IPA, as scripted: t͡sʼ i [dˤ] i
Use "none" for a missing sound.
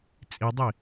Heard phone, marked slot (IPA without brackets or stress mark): dˤ